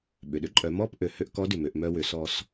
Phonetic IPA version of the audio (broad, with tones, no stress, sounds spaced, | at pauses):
ɓ ʏ˩ ɗ ʏ˧˥ ǃʼ œ˩˧ m ɔ˥ p ʔ ø˩˧ h ø˧ ʔ k ɔ˧˥ d ʏ˩ m ø˩˧ ʔ m œ˧ w ʏ˩˧ s ɔ˧ s